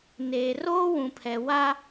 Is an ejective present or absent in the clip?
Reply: absent